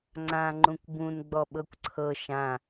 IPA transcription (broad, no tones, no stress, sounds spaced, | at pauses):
ŋ͡ǀ ã ŋ͡ǃ ũ kʷ b ũ n ɡ͡b ɔ ɓ ɤ kʷ ǀʰ ɤ ʃ ã